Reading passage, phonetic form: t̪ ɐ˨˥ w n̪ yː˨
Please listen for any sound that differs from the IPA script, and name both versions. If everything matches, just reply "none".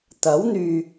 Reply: none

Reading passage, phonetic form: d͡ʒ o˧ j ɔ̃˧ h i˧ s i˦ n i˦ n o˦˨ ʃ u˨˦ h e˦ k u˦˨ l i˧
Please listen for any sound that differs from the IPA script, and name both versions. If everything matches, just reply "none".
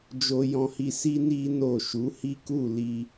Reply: e˦ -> i˦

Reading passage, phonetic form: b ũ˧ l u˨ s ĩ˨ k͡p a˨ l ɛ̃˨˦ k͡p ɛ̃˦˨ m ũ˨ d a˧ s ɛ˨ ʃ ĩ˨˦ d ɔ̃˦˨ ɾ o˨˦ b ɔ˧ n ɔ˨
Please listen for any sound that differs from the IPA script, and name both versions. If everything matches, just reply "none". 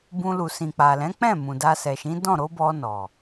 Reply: none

